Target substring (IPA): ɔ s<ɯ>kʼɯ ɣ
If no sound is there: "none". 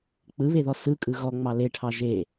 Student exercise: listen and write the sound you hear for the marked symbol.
ɯ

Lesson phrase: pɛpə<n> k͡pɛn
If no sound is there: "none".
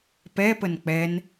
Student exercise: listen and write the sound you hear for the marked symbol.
n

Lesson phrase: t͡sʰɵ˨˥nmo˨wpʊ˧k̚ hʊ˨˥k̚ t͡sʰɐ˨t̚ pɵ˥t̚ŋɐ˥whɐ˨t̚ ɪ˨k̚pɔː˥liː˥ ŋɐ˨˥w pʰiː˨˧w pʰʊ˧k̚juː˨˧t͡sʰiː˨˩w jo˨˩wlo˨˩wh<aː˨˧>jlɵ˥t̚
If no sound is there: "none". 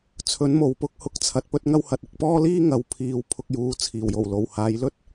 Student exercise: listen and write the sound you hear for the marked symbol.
aː˨˧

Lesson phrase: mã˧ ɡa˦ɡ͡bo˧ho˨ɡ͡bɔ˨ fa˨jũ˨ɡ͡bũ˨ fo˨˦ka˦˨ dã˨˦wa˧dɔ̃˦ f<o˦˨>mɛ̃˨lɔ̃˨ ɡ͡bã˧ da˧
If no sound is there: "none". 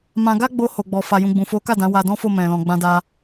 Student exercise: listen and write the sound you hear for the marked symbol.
o˦˨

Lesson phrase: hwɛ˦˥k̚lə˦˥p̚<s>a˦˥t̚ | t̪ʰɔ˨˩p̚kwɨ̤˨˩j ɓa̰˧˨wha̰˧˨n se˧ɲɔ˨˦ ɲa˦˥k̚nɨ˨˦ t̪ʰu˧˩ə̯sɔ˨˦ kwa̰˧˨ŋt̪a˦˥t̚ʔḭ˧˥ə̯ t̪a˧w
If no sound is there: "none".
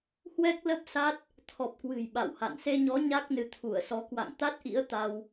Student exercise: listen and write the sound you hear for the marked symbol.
s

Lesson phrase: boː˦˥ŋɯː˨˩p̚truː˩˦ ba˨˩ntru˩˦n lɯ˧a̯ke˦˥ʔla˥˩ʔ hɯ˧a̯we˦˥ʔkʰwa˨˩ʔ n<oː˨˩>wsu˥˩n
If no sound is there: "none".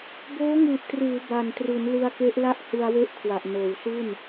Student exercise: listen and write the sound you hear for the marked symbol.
oː˨˩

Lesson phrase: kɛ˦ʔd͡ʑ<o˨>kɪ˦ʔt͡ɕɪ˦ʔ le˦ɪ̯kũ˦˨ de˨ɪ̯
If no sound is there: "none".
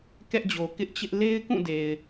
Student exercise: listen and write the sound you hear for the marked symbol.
o˨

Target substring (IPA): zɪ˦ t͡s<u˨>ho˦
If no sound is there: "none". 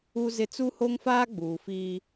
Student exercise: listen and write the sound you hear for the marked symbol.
u˦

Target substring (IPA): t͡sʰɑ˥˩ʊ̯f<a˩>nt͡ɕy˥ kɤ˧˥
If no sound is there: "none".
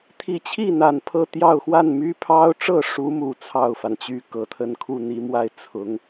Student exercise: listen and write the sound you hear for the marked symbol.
a˩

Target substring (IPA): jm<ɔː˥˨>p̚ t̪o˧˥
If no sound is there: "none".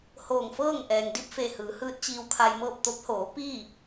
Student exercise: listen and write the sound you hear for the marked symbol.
ɤː˥˨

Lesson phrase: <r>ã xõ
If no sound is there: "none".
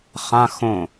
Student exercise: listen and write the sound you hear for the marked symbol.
χ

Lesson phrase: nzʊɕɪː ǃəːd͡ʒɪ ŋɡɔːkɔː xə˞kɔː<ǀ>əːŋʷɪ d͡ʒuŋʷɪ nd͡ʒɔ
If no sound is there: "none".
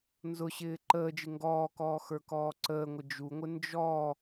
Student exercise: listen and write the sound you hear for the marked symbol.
ǀ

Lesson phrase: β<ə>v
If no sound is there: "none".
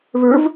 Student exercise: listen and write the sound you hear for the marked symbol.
ə˞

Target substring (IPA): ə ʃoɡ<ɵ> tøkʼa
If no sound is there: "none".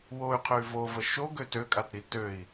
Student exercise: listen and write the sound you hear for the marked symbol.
ø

